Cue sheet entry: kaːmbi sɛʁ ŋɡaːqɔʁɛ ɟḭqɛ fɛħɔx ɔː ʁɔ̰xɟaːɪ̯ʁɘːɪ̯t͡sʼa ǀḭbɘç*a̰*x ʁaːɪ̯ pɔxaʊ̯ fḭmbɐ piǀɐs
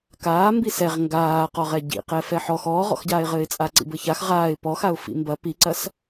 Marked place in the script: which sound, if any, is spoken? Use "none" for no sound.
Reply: a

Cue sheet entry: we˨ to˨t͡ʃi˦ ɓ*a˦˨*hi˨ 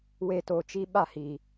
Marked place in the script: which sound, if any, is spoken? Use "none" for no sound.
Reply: a˦˨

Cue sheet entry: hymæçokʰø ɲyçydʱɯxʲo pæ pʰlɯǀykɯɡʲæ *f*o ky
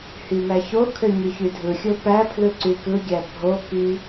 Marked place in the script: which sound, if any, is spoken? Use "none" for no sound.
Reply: bʱ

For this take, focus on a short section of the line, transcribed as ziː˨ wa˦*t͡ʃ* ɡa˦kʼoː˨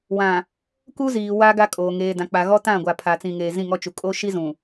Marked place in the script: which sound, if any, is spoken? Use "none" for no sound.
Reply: none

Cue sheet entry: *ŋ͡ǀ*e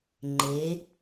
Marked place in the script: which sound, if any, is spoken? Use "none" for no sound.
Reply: ŋ͡ǃ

